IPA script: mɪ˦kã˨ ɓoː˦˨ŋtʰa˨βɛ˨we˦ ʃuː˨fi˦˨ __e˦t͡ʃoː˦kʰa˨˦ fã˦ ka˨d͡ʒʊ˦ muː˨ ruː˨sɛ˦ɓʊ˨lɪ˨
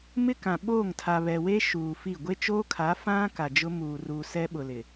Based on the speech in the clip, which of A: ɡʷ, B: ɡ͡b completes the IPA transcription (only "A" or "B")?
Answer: A